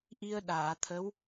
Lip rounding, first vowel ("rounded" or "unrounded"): unrounded